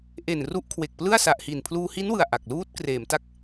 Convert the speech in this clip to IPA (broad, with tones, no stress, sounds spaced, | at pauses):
ʔ e˨˩ n r u˦˥ ʔ kʰ w e˨˩ k̚ p l ɯ˥˩ a̯ s a˨˩ ʔ h i˨˩ n pʰ l uː˧ h i˦˥ n w ɯ˨˩ a̯ ʔ a˨˩ k̚ l uː˦˥ t̚ k r eː˩˦ m t a˦˥ k̚